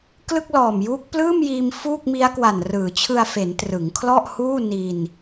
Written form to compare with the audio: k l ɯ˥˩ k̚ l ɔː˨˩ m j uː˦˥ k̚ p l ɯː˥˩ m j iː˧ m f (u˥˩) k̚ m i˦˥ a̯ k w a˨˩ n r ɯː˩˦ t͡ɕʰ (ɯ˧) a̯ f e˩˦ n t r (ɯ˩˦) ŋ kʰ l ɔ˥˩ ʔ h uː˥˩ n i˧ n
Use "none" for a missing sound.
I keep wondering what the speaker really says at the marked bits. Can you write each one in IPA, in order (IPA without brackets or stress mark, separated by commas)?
uː˥˩, ɯ˧, ɯ˩˦